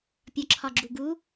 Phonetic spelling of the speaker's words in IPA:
pʲ ɒ ǁʰ ɒ ɡ͡ǁ u ɡ u

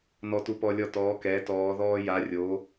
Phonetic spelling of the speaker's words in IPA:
n ɔ˦ t u˦ p ɔ˦ lʲ ɔ˦ t ɔː˨˦ k ɛː˨˦ t ɔː˨˦ ð ɔː˦ j a˨˦ rʲ o˨˦

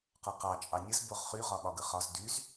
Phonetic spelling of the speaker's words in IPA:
q ɒ q ɑ t͡ʃʼ ɑ nʲ ə z b o ʁ χ y ʁ ɒ ɓ ɒ ɡ ə χ ɒ z d y z

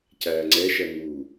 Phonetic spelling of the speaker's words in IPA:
c æː ŋ͡ǀ ɛ ʃ ɜ n̪ uː

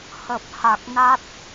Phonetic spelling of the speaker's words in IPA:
h ə˨˩ p̚ h a˨˩ k̚ n a˦˥ t̚

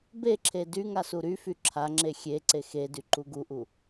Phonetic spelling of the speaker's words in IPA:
b e ǁʰ e d y ŋ a s u ɾ y f y ǁʰ a ŋ͡ǁ e xʲ e ǀ e x e d y ǃ u ɡ u ʔ u

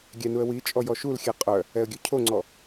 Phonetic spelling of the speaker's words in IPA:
ɡʲ ɛ n u ə̯ w i t͡ʃʼ ɔ j ɔ ʃ u l xʲ ɛ qʼ œ | ɛ ə̯ ɡʲ ʉ cʰ o ŋ͡ǀ ɔ

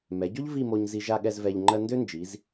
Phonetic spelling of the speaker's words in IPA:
m ɛ˩˧ ɟ o˥ ʎ v i˥˧ m o˧ ɲ z i˧ ʒ a˥˧ ɠ ɛ˥˧ z v ɛ˧ ʎ ŋ͡ǃ ɜ˥ n d ø˥ n d͡ʒ i˩˧ z

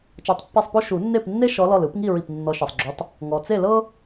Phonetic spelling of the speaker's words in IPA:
t͡ʃ ɔ˧˩ tˤ pː ɛ˥˨ sˤ p o˥ ʃ u˨˩˦ nː e˥˨ p nː e˥ ʃ ɔ˨˦ l ɔ˧˩ l ɯ˨˩˦ p ŋ i˥˨ ɹ i˧˩ p nː ɔ˨˦ ʃ ɤ˩ sˤ ɡ͡ǁ u˨˦ tˤ | ŋ ɔ˩ t͡s e˥˨ l ɤ˥

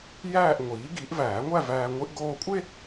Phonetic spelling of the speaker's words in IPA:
j æː˥˧ ʔ ŋʷ iː˩˥ ɡ i˩˥ ʔ v æː˨˩˦ ŋʷ æ˥˧ v æː˧ ŋʷ i˧ ʔ ɡ oː˧ kʷʼ e˥˧

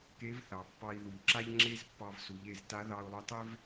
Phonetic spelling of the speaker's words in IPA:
k e˧˥ v θ ɑ˩˧ pː ɑ˧ i̯ ð u˩ ʎ ǁ a˥ ʎ ŋ͡ǁ e˥ z pː ɑ˧ v s u˩˧ ʎ e˩˧ z t a˧˥ ð ɑ˧ u̯ lˠ u˧ tˤ e˥ v

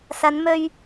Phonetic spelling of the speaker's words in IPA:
s ɐ˨˧ n m ɵ˧ ɥ

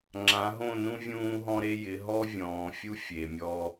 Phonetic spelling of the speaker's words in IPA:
ŋ͡ǁ ã˨˦ ɦ õ˦˨ n ũ˦ vʲ ũː˦ ɦ ɔ̃˦ ɾ e˦ j ɪ˨˦ ɦ ɔ˦ vʲ ɔ̃ː˨ fʲ u˦ fʲ e˨ mʲ ɔ˦

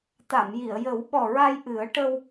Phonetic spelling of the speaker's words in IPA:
t̪ a˨˩˨ m j i˨˩˨ ə̯ j ə˨˩˦ w ɓ ɔ˨˩ ɹ a˧ j ʔ ɨ˨˩˦ ə̯ ʈ ə˧ w

